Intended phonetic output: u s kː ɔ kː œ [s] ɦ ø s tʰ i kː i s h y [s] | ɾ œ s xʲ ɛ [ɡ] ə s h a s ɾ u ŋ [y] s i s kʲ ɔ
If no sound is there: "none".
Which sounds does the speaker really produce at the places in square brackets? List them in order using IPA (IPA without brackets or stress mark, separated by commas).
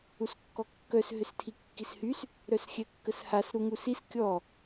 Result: s, s, kː, u